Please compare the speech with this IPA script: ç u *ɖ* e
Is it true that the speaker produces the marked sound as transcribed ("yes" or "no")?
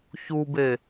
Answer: no